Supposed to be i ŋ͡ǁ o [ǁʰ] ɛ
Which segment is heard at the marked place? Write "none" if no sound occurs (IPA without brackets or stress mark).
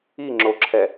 ǁʰ